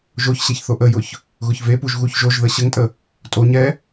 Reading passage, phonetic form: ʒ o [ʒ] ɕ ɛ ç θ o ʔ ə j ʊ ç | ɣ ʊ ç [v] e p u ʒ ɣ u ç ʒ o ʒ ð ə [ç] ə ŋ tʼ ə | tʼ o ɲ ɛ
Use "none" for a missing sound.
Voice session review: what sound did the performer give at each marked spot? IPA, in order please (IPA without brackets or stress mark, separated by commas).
ç, v, ɕ